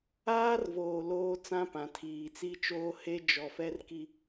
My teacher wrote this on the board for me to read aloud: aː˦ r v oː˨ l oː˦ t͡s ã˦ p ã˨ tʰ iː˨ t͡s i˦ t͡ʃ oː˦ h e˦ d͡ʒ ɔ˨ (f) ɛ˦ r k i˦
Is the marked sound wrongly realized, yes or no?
no